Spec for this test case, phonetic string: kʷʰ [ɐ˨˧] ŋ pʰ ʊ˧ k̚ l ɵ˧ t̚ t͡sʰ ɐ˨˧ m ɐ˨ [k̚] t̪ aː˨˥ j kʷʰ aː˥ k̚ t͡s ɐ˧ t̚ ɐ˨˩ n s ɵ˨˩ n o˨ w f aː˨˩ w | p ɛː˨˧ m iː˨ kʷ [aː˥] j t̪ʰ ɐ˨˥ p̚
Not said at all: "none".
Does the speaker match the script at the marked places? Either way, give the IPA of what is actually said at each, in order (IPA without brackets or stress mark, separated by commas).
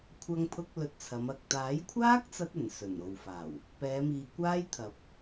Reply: ɐ˧, k̚, aː˥